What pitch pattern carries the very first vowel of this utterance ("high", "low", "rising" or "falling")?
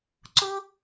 high